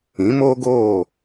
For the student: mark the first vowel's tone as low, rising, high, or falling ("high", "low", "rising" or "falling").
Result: rising